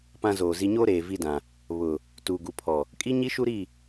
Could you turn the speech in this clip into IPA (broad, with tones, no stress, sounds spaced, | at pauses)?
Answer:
p ã˦ z oː˨ z i˦ ɲ oː˦ ɾ eː˨ v i˦ d ã˨ | β ʊ˨ | t uː˨ ɡ u˨ pʰ ɔ˨ | kʼ i˦ ɲ i˦ ʃ u˦ ɾ i˦˨